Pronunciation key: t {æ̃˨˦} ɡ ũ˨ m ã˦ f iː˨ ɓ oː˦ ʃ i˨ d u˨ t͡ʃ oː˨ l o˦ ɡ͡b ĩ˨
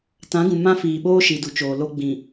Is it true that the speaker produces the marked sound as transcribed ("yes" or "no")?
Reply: no